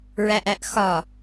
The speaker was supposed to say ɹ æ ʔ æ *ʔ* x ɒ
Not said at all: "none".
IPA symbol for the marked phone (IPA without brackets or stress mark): ʔ